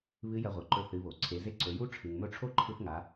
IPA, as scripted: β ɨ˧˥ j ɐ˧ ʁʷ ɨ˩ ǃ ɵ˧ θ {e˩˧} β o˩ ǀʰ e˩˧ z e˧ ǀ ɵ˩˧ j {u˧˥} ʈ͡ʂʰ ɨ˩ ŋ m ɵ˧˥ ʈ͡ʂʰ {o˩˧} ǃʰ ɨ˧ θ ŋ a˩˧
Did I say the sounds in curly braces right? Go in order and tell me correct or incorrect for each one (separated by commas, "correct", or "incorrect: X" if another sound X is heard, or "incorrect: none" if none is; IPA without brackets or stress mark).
incorrect: ɨ˩˧, correct, incorrect: o˥